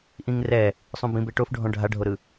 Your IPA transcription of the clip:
ʔ ĩ ŋ r ɛ | sˤ ũ b ĩ b e ʈ o f ɖʱ ɔ̃ ɖʱ a ɖʱ o ɾ ɯ

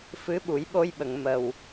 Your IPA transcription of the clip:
f ɨ˧˥ ɓ u˨˩˦ j ɓ o˧ j ɓ ə˨˩˨ ŋ m ə˨˩ w

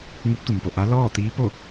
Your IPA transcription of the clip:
ŋ u˧˥ p̚ t̪ u˩ m p o˩ ʔ a˧˥ l ɔː˥˨ t̪ iː˧˥ p o˥˨

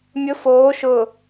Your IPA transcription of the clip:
mʲ ʊ f oː ʃ ʊː

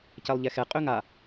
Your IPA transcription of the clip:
c ɛ lˠ ʎ ɛ x ɛ qʼ ø ŋ a

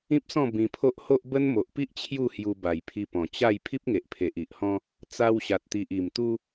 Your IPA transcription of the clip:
ĩ˦ p̚ s ɔ̃˥˧ b ĩ˧ pʰ o˦ ʔ h o˦ ʔ b ə˦ n m o˨ ʔ p i˦ ʔ t͡ɕʰ j u˥˧ h j u˧ b a˨˩ j pʰ i˧ p ɔ̃˨˩ t͡ɕ a˥˧ j pʰ i˦ p̚ ŋ e˨ ʔ pʰ e˨ ʔ i˨ ʔ h ɔ̃˦ | t͡s a˧ w ɕ a˨ t̚ t̪ i˨ ʔ i˨˩ m t̪ u˦

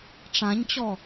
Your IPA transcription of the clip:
ʈ͡ʂ ã ɲ t͡ɕ ɔ

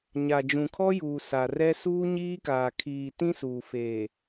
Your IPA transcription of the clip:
ɲ a˨ d͡ʒ ũ˨ kʰ ɔ˦ j uː˨ s a˨ r ɛ˦ s uː˦ ɲ iː˦ k aː˨ kʰ iː˨ t ĩ˦ s uː˨ f eː˨

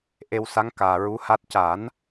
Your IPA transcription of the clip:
ʔ e˧ w s a˧˥ ŋ k aː˨˩ ɹ u˧˥ h a˦˥ t̚ c a˨˩˦ n

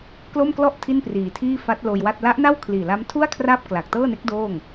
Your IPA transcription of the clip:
k l o˥˩ m k l ɔ˥˩ ʔ tʰ i˥˩ n p r iː˨˩ tʰ iː˥˩ f a˦˥ t̚ l oː˧ j w a˥˩ t̚ l a˦˥ ʔ n a˥˩ w kʰ l iː˨˩ l a˦˥ m tʰ u˥˩ a̯ kʰ r a˥˩ p̚ k l a˨˩ k̚ t ɤː˥˩ n e˦˥ k̚ d oː˥˩ ŋ

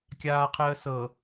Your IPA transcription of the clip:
kʲ aː qʰ əː s ɤ

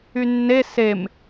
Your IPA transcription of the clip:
y nː e s e m

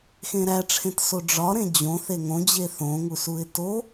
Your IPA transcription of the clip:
x ẽ ɾ æ ʈ͡ʂʰ ẽ t s o ɖ͡ʐ ɒ ɾ ẽ d͡ʑ õ θ e ŋ õ d͡ʑ e θ õ ŋ u s u ɪ̯ t o

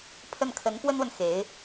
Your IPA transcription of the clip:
pʰ ə˥˩ n kʰ ə˧˥ n p w ə˥ n w ə˨ n x e˧˥ ɪ̯

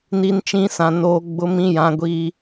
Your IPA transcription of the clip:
n i˦ n t͡ʃ ĩ˦ s ã˨ n oː˦ ɡ͡b ʊ˦ m ĩ˦ j ã˦ ɡʷ iː˦

